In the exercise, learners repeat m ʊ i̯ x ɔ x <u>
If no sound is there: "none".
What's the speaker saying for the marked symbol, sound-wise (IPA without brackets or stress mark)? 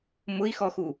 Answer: u